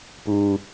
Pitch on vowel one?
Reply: low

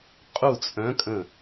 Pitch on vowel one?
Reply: falling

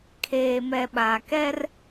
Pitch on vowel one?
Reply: low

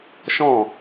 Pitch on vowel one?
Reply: falling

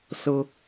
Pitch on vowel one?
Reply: high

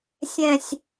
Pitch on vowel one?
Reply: falling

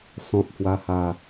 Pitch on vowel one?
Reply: low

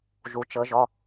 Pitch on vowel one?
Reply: low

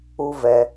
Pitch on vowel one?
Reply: high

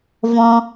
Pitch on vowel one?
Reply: low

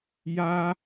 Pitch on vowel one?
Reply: high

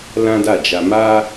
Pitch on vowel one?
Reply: high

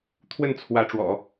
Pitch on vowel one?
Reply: falling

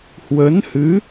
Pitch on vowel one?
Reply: rising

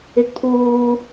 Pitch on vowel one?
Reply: low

